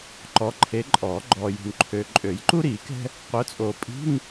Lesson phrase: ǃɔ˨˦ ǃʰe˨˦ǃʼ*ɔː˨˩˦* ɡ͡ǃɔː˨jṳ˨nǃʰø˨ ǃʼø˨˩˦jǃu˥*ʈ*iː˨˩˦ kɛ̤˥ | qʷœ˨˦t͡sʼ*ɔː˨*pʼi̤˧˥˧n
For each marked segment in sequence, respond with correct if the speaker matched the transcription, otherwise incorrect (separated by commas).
correct, incorrect, incorrect